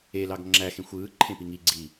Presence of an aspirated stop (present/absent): present